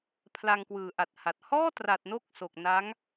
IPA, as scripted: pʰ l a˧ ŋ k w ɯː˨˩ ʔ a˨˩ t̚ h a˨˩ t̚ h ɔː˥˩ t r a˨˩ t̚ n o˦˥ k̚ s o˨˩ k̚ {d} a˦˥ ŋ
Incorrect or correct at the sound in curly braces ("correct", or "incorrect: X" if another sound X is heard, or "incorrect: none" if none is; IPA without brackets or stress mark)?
incorrect: n